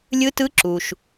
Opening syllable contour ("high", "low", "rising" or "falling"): rising